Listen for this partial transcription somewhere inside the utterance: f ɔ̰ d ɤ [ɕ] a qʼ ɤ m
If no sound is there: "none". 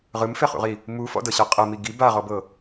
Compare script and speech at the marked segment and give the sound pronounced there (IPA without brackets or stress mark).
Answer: ɕ